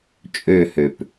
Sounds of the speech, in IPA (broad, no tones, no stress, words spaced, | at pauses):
t͡ʃʼøhøp